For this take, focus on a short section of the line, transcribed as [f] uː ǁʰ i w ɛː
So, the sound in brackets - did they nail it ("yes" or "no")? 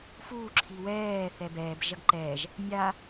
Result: yes